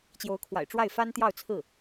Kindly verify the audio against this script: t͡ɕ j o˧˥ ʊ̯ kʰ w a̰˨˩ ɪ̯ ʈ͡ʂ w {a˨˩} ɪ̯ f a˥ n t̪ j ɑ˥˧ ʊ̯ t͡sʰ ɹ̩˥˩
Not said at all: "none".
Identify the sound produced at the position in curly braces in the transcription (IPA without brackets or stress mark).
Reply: a˥˩